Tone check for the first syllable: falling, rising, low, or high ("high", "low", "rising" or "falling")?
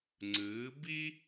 rising